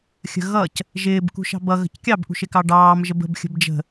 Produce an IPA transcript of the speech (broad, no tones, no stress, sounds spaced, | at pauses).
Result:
xʲ ə̤ ɣ ʌ c | ʒ ɪː b k ṳ ʃ ɑ̤ b ʌ ɣ ə̤ c kʲ ɑ b ʔ ṳ ʃ ɪ k ɑ ɖ ɑː m ʒ ə b ə̤ b xʲ ə̤ b d͡ʒ ə̤